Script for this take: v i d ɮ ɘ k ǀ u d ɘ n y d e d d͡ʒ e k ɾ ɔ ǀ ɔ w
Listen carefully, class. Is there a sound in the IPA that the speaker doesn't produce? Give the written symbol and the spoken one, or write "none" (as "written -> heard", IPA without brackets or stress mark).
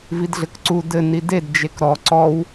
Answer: y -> i